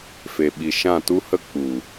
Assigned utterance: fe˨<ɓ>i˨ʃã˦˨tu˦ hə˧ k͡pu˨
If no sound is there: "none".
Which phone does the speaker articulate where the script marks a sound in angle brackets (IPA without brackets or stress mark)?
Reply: ɓ